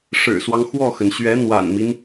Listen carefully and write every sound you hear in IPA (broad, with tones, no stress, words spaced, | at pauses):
ʂɻ̩˨˩swɑ˦ŋ xwɔ˥˩xə˩n ɕɥɛ˧˥n̪wa̰˨˩nmi˦n